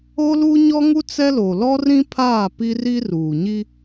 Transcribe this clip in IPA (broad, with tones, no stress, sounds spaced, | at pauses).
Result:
o˦ l u˦ ɲ ɔ˦ ŋ u˦ t͡s ɛ˦ l o˨ l ɔ˦ r ĩ˦ pʰ aː˦˨ p i˦ r i˦ r uː˨ ɲ i˦